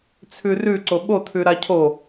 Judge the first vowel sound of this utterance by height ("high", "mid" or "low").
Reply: high